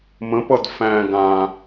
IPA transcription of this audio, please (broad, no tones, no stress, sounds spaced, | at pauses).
m ə̃ p ʌ d f æ̃ ɡ ã